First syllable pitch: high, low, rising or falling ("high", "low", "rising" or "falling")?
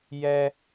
high